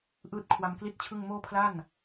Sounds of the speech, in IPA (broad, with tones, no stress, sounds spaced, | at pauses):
ʔ ɯː˥˩ t̚ kʰ w a˧ m k l i˥˩ t̚ t͡ɕʰ ɯ˥˩ ŋ m oː˥˩ pʰ l a˥˩ n